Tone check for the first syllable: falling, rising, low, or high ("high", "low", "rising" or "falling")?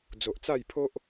low